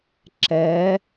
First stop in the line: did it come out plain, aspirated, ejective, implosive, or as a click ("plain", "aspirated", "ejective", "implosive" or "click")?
click